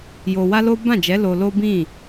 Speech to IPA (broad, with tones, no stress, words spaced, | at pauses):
jo˧wa˦lo˦ bã˦˨d͡ʒɛ˨˦ lo˧lo˦ bĩ˦˨